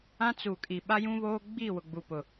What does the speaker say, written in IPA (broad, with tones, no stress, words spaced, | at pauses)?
ã˦t͡su˨kʼi˨ ɓa˦jũ˦βoː˦ ɡ͡biː˦˨wʊ˨ɡ͡bu˨pʊ˨